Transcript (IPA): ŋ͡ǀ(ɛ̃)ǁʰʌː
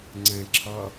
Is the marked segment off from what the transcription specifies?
no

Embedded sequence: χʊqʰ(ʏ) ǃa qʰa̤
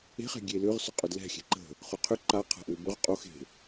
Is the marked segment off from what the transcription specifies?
no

